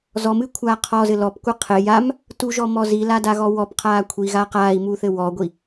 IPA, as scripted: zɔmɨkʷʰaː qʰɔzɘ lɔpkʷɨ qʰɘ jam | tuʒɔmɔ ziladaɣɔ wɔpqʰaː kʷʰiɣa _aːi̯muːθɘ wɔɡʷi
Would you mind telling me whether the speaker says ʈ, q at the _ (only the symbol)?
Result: q